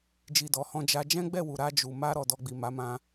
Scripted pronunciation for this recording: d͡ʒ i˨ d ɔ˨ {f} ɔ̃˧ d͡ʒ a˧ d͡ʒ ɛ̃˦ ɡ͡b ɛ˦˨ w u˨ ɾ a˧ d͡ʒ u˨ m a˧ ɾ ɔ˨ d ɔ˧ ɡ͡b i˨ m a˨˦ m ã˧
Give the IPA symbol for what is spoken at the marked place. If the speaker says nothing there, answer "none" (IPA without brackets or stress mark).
h